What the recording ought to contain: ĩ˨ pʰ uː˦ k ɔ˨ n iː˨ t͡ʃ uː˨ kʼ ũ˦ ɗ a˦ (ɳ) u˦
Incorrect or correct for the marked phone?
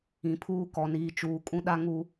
incorrect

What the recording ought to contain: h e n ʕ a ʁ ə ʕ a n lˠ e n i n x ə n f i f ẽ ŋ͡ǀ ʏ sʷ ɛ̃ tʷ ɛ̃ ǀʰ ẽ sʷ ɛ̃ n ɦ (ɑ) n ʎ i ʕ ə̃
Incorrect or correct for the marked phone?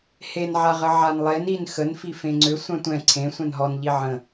incorrect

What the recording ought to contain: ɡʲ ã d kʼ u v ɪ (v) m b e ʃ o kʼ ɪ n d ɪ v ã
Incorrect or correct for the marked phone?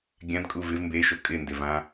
correct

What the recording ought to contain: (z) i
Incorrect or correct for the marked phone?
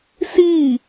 incorrect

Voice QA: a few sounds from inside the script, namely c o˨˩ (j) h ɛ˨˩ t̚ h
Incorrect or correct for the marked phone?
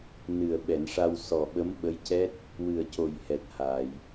correct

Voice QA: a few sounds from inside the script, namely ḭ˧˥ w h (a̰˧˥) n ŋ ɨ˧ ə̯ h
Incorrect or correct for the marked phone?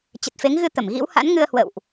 correct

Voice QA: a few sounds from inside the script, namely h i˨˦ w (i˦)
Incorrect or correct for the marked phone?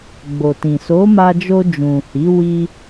incorrect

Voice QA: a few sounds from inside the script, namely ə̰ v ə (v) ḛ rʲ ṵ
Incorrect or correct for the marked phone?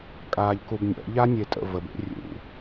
incorrect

